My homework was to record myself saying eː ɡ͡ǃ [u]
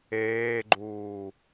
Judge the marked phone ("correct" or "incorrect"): incorrect